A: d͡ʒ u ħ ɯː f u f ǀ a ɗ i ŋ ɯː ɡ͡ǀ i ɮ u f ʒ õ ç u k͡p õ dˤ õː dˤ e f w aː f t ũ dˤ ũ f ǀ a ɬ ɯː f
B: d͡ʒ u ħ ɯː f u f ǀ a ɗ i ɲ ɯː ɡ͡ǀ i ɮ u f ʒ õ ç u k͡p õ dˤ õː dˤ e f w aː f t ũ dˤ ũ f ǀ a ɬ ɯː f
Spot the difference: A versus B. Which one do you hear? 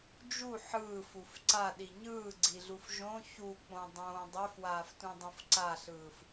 B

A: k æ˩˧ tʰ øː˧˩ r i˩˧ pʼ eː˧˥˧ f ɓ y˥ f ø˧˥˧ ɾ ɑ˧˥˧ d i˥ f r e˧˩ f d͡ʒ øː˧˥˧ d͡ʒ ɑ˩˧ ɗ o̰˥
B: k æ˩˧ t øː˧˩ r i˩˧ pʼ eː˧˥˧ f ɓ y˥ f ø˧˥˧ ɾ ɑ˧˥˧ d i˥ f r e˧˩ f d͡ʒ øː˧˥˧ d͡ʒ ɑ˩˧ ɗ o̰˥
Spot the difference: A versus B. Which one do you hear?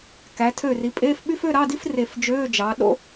A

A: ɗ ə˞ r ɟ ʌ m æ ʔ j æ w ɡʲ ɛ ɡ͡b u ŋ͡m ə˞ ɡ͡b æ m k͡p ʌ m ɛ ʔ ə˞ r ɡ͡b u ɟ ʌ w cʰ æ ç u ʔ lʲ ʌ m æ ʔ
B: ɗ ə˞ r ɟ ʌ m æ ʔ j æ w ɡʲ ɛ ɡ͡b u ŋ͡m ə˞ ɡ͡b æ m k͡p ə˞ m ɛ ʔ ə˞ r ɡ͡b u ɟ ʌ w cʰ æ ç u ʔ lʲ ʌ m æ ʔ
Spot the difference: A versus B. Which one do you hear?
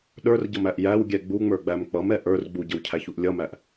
A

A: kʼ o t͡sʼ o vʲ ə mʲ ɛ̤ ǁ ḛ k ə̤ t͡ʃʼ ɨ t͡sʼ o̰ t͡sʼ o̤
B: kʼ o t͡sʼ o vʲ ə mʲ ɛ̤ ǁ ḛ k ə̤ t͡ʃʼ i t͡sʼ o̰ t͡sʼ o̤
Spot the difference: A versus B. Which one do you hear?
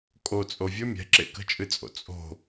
A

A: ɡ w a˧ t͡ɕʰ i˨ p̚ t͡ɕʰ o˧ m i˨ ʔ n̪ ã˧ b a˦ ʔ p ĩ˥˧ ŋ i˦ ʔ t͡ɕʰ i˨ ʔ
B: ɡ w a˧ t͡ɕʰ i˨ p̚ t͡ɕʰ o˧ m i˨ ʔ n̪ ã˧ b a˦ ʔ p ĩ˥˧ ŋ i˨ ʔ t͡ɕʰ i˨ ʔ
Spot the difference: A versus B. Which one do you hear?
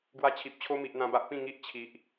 A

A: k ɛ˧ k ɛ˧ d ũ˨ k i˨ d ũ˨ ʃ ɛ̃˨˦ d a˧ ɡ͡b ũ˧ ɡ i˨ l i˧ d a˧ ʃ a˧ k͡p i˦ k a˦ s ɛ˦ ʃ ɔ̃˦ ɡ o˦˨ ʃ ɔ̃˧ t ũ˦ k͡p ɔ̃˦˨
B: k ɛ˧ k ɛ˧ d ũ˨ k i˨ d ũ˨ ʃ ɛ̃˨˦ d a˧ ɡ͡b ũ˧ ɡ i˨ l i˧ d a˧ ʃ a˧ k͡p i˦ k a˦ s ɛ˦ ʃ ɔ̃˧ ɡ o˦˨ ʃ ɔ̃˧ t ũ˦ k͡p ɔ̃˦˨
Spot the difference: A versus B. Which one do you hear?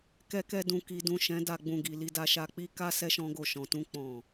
A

